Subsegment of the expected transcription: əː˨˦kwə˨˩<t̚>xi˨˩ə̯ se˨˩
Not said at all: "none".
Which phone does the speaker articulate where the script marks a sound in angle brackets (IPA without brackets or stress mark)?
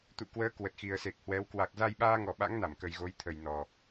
t̚